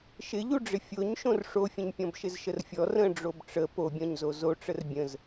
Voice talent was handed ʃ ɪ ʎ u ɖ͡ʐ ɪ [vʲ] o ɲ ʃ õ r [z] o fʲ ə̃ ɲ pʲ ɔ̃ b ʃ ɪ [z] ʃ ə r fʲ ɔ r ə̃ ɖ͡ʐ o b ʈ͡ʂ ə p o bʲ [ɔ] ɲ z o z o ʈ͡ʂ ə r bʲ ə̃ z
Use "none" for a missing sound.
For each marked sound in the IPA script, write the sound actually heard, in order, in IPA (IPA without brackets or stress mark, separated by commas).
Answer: fʲ, ʂ, z, ɔ̃